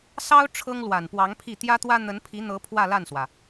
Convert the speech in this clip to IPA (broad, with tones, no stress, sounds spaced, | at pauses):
s ɑ˥ ʊ̯ ʈ͡ʂʰ ɤ˥ ŋ l w a˨˩ n p w ɑ˧˥ ŋ pʰ i˥˩ t̪ j ä˥ t̪ w ä˥ n̪ ə˧˥ n pʰ i˧˥ n̪ ɤ˧˥ pʰ w ä˥˧ l a˥˩ n s w ä˩